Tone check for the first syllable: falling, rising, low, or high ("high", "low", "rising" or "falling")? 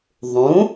rising